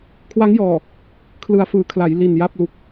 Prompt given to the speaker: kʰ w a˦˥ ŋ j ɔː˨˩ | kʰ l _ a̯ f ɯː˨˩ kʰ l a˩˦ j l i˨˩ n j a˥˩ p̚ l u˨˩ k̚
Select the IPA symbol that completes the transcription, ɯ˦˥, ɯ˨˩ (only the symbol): ɯ˨˩